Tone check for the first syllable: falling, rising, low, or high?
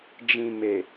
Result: low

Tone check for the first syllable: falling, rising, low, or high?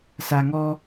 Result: low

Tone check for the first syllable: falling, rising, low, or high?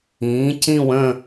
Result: rising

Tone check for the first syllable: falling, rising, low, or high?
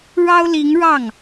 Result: high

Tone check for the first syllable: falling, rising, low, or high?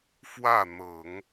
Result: falling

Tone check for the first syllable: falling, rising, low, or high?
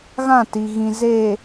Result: falling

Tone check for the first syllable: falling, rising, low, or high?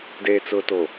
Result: low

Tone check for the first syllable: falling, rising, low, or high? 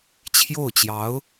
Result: falling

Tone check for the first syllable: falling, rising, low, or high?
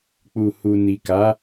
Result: low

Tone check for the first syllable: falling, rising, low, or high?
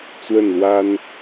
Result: falling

